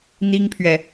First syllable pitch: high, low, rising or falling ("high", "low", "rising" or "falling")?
high